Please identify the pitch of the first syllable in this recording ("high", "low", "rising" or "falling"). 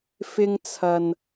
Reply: high